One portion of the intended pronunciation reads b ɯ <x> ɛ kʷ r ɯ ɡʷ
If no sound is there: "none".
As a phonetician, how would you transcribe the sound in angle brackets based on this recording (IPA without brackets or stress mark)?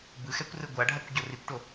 x